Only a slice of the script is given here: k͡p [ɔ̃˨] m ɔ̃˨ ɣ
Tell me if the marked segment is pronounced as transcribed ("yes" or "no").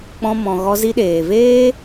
no